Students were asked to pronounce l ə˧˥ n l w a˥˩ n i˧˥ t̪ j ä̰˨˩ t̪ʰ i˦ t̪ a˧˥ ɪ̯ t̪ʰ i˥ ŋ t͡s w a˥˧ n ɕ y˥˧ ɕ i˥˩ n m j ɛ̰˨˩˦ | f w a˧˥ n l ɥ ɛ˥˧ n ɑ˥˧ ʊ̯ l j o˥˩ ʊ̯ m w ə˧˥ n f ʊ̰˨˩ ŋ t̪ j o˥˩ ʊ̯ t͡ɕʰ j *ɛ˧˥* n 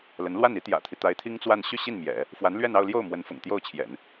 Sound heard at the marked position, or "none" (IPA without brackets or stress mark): ɛ̰˨˩˦